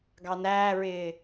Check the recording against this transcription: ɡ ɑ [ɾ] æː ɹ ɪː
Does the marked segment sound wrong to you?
yes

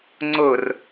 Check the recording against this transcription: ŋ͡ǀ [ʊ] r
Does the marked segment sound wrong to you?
no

